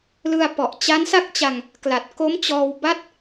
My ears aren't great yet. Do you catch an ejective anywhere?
no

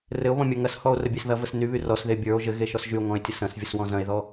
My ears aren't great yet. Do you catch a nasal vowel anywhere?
yes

